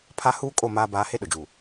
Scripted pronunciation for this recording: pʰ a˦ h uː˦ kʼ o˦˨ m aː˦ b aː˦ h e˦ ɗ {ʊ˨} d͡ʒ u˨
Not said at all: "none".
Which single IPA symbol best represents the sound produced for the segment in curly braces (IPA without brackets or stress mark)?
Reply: ʊ˨